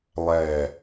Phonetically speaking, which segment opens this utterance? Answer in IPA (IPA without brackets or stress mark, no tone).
lˠ